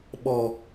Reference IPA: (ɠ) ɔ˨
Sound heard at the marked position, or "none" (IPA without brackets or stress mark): ɓ